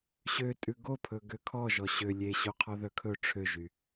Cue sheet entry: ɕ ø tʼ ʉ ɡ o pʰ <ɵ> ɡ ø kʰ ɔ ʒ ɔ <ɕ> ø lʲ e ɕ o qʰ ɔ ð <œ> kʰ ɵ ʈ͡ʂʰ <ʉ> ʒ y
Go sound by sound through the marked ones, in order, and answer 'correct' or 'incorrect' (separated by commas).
correct, correct, correct, incorrect